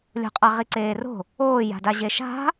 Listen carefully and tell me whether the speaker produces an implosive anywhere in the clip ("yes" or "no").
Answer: no